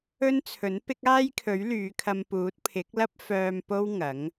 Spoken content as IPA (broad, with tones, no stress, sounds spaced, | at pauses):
ɵ˥ n t͡sʰ ɵ˨˥ n p ɪ˥ k̚ aː˥ j kʰ ɵ˨˥ ɥ l yː˨˧ kʰ ɐ˧ m p uː˨˥ t̚ pʰ ɪ˨˥ k̚ l ɐ˥ p̚ f œː˧ m p o˥ w ŋ ɐ˨˥ ŋ